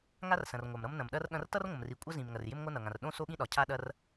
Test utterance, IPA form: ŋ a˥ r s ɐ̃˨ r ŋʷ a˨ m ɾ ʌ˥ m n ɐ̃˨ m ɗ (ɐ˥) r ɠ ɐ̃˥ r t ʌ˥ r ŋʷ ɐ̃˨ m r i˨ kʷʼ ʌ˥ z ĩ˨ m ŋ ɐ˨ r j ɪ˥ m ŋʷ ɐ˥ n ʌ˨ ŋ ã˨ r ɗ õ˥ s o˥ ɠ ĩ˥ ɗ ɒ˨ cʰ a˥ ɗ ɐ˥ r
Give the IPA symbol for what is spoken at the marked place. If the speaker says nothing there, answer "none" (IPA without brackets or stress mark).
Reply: ɐ˥